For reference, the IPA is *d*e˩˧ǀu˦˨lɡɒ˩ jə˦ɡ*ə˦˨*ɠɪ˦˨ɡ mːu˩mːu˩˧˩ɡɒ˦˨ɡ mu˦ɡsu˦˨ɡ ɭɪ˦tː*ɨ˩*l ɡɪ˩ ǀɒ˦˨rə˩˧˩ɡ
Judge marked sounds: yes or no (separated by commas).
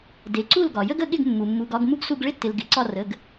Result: yes, yes, no